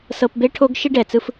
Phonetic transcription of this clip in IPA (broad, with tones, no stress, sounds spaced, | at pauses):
s ɤ˧ p b e˦ ʈʰ o˦ ɡ ʃ i˦ ɖ ɛ˨ t͡s ɯ˧ f